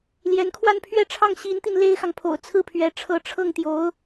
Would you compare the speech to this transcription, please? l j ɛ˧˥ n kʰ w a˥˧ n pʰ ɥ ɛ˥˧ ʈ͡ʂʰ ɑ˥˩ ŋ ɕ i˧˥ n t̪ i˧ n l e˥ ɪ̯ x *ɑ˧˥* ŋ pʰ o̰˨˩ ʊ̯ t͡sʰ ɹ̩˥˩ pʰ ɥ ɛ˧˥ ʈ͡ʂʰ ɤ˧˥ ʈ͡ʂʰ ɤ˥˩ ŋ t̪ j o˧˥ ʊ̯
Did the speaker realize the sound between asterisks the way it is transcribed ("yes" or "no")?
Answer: no